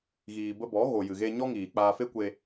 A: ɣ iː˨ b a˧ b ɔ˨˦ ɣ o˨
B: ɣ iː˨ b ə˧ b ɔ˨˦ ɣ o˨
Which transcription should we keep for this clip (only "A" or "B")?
B